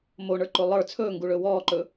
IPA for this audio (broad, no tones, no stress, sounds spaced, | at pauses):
m o ɳ ə˞ ǃ o lˠ ə˞ t͡sʰ ɵː ŋ ɡ u ɭ ɵ w ɔː ǃ ɵ